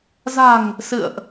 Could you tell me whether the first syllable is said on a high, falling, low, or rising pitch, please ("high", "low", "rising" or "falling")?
low